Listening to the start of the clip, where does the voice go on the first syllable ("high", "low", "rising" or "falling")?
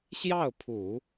falling